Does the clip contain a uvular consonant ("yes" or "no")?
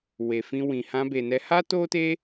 no